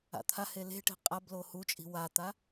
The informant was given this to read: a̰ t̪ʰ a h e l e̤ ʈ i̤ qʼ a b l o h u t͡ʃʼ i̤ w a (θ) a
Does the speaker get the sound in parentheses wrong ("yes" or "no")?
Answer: yes